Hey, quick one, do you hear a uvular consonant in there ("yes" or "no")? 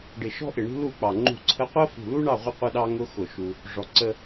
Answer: yes